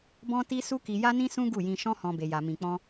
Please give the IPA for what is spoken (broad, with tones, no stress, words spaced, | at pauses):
bɔ̃˦ti˦ su˦ki˧ja˦nĩ˦ sũ˦ ɡu˦˨jĩ˧ ʃɔ̃˦hɔ̃˧ be˧ja˧mĩ˧k͡pɔ̃˦